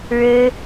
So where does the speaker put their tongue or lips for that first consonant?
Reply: retroflex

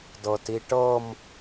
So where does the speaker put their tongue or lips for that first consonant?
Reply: tongue tip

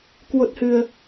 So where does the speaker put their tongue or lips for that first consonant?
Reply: velum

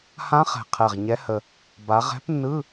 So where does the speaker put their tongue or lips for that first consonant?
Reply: throat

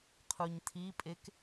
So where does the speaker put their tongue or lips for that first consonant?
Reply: uvula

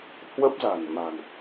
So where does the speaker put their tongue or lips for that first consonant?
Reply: throat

